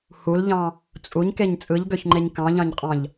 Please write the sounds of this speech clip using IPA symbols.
h u l ʎ ɑ̃ | t͡sʼ u ɲ k e ɲ t͡sʼ ɯ ʎ ɡ ø ç ŋ͡ǃ e ɲ k ɑ̃ ʎ ɑ̃ ɲ qʼ ɑ̃ ʎ

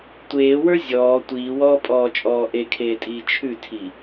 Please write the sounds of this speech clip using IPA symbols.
tʷ eː w ə˞ zʲ ɔː tʷ iː w ɔː pʼ ɔː t͡ʃʼ ɔː ʔ e kʰ eː tʼ iː t͡ʃʰ ʉ tʰ i

